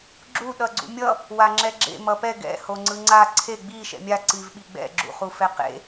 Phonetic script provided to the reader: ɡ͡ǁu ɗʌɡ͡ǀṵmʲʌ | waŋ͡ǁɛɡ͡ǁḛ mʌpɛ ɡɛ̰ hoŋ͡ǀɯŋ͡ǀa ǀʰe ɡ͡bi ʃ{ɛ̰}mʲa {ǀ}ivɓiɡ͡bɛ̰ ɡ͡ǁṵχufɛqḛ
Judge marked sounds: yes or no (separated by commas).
yes, yes